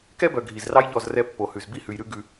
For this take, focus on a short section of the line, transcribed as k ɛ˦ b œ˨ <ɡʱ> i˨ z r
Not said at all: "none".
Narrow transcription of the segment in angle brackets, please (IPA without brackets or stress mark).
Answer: ɡʱ